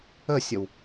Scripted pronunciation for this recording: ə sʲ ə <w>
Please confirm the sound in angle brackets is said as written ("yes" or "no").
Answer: yes